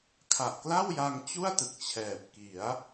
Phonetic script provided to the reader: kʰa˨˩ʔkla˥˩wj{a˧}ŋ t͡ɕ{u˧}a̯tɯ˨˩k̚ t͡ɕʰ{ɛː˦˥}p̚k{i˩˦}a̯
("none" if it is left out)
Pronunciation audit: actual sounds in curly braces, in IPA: a˧, u˥˩, ɛː˨˩, i˩˦

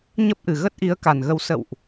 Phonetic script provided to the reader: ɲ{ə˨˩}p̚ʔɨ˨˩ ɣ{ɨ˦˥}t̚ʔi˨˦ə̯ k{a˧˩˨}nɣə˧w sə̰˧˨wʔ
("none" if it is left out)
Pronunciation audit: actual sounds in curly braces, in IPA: ə˦˥, ə˦˥, a˨˩

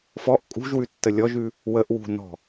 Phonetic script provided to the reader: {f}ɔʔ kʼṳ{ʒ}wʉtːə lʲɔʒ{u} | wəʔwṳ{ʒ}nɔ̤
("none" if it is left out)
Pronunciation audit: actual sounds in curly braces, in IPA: f, ʒ, ʉ, none

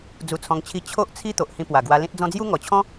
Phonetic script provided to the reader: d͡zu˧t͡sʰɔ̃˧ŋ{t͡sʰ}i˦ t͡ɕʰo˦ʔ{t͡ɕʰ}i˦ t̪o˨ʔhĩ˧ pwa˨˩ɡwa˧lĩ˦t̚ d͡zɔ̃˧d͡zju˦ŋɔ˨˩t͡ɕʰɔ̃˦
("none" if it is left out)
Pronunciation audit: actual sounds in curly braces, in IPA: t͡ɕʰ, t͡sʰ

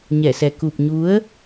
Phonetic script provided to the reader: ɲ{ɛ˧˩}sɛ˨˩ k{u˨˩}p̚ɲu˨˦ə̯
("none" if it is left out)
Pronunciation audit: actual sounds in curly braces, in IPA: ɛ˧˩, u˨˩

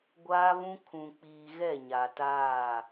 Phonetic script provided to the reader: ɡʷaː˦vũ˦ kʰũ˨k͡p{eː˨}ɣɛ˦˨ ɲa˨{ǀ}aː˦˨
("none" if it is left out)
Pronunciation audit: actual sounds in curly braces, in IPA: iː˨, t

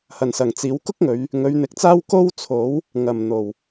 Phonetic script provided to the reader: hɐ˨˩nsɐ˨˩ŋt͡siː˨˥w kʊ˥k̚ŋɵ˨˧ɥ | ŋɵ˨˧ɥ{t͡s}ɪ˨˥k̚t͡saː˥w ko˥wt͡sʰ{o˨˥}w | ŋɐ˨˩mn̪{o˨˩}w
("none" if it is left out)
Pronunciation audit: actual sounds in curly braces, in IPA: n̪, o˨˥, o˨˩

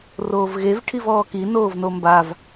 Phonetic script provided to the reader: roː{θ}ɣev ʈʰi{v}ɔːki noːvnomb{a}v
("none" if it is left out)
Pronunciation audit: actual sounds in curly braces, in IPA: v, v, a

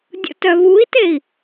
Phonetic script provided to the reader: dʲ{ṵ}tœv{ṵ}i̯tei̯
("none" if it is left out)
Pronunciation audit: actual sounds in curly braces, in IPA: ṵ, u

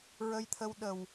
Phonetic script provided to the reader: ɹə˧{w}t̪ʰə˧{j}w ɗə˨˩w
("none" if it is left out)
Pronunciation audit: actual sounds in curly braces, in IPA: j, none

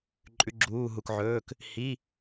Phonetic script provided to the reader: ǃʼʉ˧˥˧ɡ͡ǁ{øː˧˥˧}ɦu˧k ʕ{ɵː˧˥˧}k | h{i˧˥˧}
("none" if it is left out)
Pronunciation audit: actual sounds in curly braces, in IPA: uː˧˥˧, ɵː˧˥˧, i˧˥˧

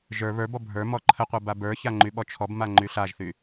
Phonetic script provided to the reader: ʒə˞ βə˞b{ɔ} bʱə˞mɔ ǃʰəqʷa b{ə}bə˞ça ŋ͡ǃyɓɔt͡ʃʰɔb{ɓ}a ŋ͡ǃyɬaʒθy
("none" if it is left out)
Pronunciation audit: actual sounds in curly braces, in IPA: ɔ, a, m

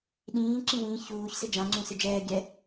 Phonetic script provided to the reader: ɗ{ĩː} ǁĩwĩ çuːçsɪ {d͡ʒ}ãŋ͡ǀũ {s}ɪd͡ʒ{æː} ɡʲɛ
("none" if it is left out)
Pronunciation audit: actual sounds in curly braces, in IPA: ĩː, d͡ʒ, s, ɛː

